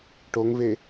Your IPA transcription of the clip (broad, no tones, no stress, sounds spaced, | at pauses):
ʈ o ŋ v e